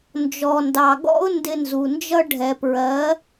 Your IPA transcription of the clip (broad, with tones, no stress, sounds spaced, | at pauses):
n d͡ʒ ɔ˨ n d ɑ˨ ɡ ɔ̰˦ ʊ̯ n d ɪ˧ n z u˨ n d͡ʒ ʌ˦ ɖʱ ɛ˨ p ɹ ɜ˨˦